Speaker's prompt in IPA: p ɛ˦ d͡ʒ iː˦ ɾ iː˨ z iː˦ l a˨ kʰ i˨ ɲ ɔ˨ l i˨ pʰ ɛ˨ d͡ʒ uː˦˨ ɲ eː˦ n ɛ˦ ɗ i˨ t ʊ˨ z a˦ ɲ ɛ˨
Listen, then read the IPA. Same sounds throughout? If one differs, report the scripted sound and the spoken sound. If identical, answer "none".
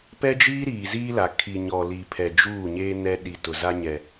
none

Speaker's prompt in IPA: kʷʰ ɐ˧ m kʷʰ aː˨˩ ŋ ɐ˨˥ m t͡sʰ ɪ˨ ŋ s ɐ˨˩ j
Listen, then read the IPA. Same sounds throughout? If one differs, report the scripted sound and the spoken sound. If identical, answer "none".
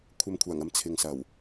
j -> w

